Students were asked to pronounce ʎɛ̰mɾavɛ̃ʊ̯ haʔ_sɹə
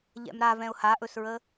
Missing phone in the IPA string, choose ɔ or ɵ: ɵ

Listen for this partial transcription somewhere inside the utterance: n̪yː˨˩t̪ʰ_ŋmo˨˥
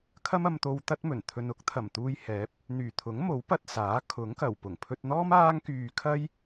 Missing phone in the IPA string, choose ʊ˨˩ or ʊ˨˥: ʊ˨˥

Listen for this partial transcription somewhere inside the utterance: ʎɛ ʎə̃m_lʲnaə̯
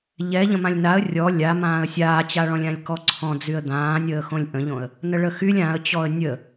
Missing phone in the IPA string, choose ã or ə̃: ã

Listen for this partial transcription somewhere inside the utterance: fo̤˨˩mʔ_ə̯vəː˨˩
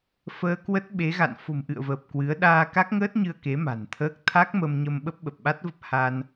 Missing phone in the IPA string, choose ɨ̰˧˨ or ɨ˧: ɨ̰˧˨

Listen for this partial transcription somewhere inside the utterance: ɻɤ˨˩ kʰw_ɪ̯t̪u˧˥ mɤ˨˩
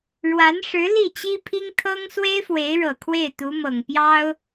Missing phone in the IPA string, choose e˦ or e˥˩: e˥˩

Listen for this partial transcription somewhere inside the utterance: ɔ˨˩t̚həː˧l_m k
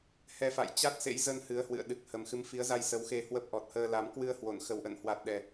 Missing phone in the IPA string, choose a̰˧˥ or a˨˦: a˨˦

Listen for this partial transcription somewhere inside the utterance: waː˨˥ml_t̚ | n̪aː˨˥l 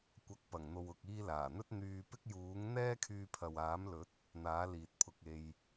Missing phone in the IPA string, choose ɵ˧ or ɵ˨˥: ɵ˨˥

